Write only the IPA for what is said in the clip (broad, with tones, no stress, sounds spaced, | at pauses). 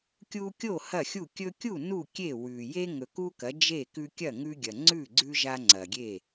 kʲ u˦ kʲ o˥˨ h ɐ˥˨ xʲ u˥˨ kʲ ɵ˦ kʲ u˥˨ n u˥˨ kʲ e˥˨ w ʉ˨ j e˦ ŋ ɵ˨ k u˦ k ɐ˨˦ d͡ʒ e˥˨ k ʉ˦ kʲ ɐ˥˨ ŋ ʉ˦ ɡʲ ɐ˨ ŋ͡ǀ ʉ˥˨ ɡ͡ǀ ʉ˦ ʒ a˦ ŋ͡ǀ ɐ˨ ɡʲ e˥˨